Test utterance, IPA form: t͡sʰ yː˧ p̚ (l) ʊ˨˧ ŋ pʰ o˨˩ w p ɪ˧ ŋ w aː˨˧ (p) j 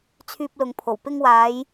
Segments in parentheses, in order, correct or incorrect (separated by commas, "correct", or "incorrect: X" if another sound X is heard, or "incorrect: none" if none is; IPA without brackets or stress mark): correct, incorrect: none